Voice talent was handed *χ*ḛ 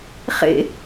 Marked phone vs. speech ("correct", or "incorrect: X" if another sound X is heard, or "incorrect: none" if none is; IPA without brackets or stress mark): correct